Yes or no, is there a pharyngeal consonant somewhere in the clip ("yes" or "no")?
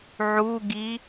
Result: yes